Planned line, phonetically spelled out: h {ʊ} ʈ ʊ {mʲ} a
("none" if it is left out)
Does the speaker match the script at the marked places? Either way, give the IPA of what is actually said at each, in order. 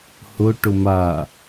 ʊ, m

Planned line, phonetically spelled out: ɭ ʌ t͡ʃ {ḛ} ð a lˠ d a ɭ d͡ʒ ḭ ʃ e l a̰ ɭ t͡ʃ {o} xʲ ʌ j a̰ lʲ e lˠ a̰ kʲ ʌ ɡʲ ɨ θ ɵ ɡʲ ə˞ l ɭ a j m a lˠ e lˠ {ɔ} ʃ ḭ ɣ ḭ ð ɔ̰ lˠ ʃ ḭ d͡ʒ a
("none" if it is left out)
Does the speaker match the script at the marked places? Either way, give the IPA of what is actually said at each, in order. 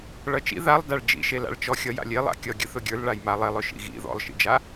ḭ, ɔ, ɵ

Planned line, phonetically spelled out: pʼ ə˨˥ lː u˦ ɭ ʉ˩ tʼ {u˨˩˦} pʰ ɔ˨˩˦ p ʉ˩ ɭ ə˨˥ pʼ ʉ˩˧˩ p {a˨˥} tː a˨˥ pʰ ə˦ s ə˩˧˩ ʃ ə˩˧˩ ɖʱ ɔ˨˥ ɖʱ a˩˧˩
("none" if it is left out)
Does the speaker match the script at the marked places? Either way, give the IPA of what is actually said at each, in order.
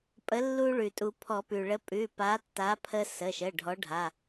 u˨˩˦, a˨˥

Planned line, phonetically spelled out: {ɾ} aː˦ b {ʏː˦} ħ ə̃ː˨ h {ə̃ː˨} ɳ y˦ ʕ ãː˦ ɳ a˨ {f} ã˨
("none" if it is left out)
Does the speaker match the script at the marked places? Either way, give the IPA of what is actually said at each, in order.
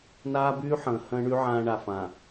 n, yː˦, ə̃ː˦, f

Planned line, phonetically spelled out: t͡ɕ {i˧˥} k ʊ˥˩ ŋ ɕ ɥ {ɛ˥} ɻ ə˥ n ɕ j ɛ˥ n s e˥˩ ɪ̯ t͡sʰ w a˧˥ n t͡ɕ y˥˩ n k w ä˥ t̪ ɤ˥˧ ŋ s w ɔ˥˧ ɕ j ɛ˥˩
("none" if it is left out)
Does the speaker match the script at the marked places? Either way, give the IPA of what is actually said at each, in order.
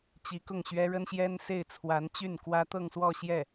i˧˥, ɛ˥

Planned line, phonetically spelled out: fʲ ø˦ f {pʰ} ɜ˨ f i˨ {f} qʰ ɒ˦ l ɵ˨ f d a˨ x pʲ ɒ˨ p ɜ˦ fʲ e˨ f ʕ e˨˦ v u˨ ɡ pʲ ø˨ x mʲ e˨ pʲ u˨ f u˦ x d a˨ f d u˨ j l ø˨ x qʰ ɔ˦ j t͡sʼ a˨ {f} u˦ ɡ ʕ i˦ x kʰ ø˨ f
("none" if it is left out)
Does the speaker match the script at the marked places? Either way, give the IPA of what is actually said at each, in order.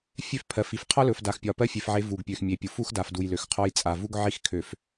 pʰ, f, v

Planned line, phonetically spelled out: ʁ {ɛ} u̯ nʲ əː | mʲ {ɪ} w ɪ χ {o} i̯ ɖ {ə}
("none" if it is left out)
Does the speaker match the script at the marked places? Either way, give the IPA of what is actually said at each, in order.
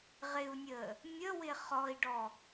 ɪ, ə, ɔ, ɔ

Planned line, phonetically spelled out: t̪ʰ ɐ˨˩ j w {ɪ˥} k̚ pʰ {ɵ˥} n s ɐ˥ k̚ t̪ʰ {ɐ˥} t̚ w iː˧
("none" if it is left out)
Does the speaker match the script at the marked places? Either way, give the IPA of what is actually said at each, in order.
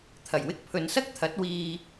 ɪ˥, ɵ˨˧, ɐ˨˥

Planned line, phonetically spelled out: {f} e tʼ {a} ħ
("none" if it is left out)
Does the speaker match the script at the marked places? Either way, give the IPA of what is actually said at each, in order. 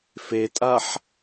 f, a

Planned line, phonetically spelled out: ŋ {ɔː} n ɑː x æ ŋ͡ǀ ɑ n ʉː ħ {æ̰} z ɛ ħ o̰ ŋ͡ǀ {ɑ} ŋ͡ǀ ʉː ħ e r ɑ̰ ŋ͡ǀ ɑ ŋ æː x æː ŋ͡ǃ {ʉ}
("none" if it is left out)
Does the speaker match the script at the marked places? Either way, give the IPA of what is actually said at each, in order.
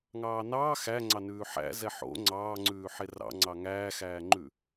ɑː, æ̰, ɑː, ʉ

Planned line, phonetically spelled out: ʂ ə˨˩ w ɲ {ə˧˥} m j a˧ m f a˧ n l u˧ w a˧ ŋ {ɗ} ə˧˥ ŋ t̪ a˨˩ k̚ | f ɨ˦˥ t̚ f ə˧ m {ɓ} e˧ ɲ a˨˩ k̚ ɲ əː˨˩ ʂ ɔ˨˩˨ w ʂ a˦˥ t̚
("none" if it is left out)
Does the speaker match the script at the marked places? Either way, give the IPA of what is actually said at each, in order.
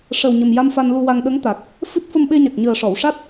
ə˨˩, ɗ, ɓ

